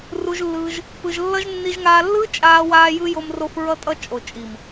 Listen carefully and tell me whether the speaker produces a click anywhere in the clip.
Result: no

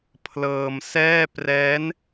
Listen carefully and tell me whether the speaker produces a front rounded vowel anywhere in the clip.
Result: no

